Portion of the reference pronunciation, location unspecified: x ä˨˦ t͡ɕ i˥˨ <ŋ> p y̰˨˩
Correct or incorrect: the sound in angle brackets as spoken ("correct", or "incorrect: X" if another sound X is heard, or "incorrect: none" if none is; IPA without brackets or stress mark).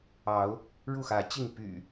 correct